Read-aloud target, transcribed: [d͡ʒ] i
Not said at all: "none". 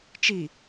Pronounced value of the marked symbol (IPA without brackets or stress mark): t͡ʃ